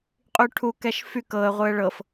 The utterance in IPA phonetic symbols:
qʼyʈʰukɛʃ fyk ɤə̯ ʁʷɯə̯ɭɤf

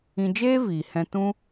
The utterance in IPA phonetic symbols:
ĩ˧ d͡ʒeː˦viː˨hɛ̃˧ tũ˦

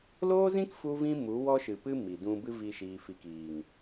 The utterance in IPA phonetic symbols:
loː˦zĩ˦kfu˧vĩ˧ mu˨˦wɔ˦ʃɨ˨pɨ˦ mi˨ dũ˧bɨ˦ vi˦ʃiː˧fi˧kiː˨ŋ

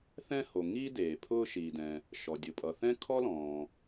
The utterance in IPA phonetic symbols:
θɛ̃˥ho˩ ŋiː˥ deː˩pʰʊː˥ ʃiː˩dɛ̃˩ | ʃɔ˩dʲʊ˩pʼʌ˩θɛ̃˥ kʰɔ˥lɔ̃ː˩

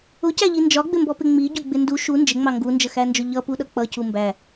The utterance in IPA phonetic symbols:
ʊcæʎi nd͡ʒɒɡ͡bɪmbɔpɪ ŋ͡miɟʊɡ͡bɪ ndu ʃu nd͡ʒɪŋ͡mɑ ŋɡund͡ʒəxænd͡ʒʊ ʎʌpuɗʌ k͡pʌcu mbæ

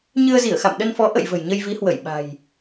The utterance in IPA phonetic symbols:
ɲɨ˧ə̯zi˧˩ə̯xa̰˧˨m ɗə˧nfɔ˨˦ ʔə̰˧˨j və̤˨˩jɲə˧jvi˨˦hwə˧˩j ɓa̤˨˩j

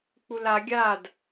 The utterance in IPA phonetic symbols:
k͡pula ɡʲad

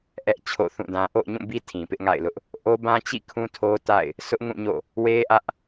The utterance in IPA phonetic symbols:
ʔɛ˦ʔ t͡ɕʰo̰˦˨θũ˦˨dã˦ ʔo̰˦˨ʊ̯ɲũ˦˨bi˦ tʰĩ˨pɪ˦ʔŋa̰˦˨ɪ̯lʊ˦ʔ | ʔo˦ bã˦t͡ɕḭ˦˨ kʰũ˦tʰo˦ta̰˦˨ɪ̯ | sʊ˦ʔŋũ˦˨ɲo̰˦˨ | we˦ʔä˦ʔ

